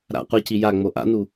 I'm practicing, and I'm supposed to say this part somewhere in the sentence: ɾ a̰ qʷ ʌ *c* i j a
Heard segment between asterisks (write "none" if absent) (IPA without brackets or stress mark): c